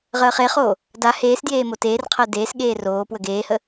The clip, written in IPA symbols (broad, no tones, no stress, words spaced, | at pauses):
ʁəːχeχoː | da heːsdjeː moteːrqʰəː deːsɠeː roː pwəɡeːhə